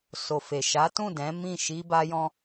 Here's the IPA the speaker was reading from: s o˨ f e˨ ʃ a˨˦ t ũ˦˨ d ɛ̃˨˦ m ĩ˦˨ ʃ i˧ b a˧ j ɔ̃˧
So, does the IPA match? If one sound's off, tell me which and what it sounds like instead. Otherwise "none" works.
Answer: none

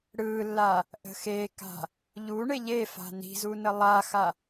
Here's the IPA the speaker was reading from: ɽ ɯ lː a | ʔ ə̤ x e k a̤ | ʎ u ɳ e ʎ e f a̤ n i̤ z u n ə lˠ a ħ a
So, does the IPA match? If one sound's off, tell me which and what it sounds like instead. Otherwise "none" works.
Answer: ħ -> x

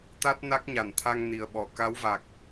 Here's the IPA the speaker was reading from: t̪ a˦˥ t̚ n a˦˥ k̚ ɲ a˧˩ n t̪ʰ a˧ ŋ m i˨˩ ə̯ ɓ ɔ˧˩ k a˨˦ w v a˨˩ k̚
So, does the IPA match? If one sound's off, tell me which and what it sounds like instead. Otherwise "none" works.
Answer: m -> n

